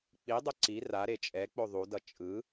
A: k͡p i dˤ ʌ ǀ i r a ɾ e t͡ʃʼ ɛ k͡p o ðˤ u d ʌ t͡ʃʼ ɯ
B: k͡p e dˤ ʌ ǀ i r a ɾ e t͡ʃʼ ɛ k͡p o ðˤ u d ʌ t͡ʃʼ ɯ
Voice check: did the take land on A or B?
A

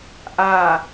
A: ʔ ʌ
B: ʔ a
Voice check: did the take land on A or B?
B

